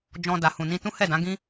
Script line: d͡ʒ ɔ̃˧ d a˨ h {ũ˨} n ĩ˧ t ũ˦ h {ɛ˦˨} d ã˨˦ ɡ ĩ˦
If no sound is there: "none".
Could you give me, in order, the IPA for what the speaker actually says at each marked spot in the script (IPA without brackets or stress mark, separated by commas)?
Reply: ũ˨, ɛ˦˨